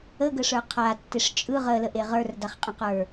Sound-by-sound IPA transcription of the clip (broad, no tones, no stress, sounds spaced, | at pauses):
ə ɡ ə ʂ ə˞ qʰ a tː e ʂ t͡ʃʼ ɯ ʁ əː l ə ʔ e ʁ ə˞ r d a χ qʼ ə̃ q ə˞